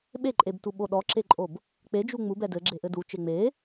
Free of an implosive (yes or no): no